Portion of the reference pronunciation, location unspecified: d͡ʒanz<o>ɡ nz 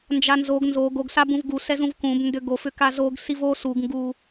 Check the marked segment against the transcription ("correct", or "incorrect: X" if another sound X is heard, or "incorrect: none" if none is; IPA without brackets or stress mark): correct